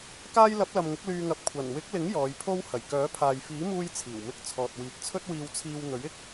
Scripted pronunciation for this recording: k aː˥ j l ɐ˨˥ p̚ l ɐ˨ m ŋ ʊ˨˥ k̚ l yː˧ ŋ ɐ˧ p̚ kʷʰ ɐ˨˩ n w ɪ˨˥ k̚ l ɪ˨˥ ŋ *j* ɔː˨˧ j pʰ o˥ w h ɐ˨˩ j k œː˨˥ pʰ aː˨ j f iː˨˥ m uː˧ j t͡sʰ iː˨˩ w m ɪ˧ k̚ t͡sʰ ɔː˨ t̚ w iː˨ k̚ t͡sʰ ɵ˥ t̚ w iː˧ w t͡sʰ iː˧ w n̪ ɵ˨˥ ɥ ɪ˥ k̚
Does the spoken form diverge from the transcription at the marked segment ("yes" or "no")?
no